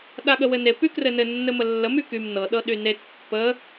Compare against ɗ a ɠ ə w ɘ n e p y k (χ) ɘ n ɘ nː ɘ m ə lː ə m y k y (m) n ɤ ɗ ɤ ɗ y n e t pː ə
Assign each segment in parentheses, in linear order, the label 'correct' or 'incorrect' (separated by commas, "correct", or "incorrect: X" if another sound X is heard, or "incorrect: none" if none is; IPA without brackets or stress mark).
incorrect: r, correct